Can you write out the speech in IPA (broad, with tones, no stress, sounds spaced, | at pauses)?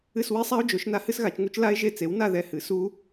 ɨ˦˨ s w i˦˥ sˤ a˦˥ o̯ d͡ʒ o˩˥ ʃ n a˦˥ h ɨ˦˥ s ɣ a˩˥ t͡ʃ ŋ u˦˥ t͡ʃ l a˦˥ e̯ ʒ e˦˨ t͡s e˩˥ w n a˦˨ ð ɛ˦˨ h ɨ˩˥ s u˦˥